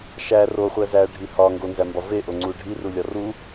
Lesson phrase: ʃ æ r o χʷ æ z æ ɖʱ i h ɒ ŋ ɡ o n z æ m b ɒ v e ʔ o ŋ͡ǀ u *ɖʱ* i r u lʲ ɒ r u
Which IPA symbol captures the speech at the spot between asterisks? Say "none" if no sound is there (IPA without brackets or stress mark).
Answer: ɖʱ